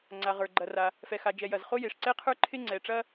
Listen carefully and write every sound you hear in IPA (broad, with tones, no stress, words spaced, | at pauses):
ŋ͡ǀa˩ʁə˞˩ ɡ͡ǃɐ˩ra˩ | fɛ˩xa˩d͡ʒɛ˩ jɐ˩zχo˥ je˩ʂǀɛ˥qʰə˞˥ ǃʰɪ˥ ŋ͡ǀɛ˩ʈ͡ʂɐ˥